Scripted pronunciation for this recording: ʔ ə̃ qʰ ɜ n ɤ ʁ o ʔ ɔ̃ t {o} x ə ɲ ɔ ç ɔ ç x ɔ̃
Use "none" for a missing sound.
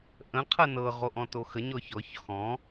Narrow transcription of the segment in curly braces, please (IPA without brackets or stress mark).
o